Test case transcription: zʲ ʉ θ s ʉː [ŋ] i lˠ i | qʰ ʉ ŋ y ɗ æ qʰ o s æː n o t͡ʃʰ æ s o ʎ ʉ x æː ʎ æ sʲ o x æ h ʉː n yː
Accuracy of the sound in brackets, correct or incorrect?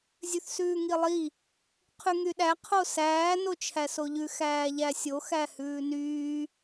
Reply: correct